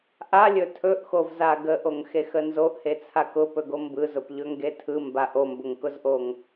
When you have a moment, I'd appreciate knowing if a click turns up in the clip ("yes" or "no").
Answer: no